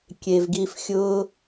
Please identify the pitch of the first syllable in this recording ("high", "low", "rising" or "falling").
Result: low